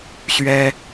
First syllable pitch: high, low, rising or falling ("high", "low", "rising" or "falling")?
high